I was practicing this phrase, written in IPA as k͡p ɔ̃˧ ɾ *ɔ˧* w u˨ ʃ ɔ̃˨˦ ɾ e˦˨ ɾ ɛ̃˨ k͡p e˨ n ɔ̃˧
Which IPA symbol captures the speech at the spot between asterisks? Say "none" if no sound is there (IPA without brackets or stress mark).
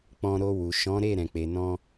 o˧